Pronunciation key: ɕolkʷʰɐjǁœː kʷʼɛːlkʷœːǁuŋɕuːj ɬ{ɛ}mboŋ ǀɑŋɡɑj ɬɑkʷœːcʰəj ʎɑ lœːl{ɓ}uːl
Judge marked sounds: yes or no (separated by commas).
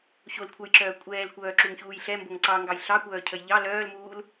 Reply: yes, no